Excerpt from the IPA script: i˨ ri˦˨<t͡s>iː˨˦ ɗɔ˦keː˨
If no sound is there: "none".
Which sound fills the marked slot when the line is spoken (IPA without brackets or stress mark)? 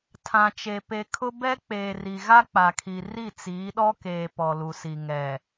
t͡s